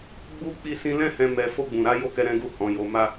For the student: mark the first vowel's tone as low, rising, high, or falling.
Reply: high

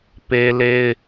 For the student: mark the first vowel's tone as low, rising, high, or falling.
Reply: high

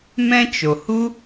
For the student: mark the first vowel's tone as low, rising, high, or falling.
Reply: high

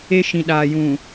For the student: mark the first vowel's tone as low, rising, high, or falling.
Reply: high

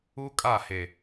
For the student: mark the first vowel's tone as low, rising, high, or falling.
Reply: high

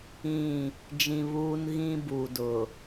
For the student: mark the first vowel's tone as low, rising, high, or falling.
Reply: falling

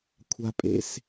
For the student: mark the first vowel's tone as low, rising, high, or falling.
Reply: high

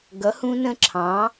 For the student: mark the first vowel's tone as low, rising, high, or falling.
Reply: rising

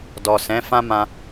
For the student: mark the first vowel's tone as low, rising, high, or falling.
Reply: low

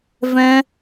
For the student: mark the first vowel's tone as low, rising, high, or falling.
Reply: high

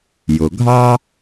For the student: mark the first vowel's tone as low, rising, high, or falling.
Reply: low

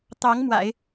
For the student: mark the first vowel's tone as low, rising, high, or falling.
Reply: rising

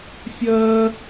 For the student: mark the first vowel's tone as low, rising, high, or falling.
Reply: high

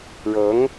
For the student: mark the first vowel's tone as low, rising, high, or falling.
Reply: rising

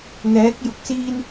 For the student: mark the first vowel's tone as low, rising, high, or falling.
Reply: rising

